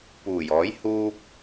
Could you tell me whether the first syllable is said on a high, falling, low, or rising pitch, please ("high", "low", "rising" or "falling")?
low